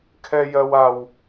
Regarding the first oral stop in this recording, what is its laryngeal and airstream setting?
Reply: aspirated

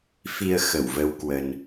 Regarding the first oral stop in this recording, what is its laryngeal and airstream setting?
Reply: plain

